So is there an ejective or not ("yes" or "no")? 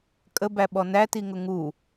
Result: yes